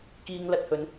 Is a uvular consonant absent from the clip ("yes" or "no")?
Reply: yes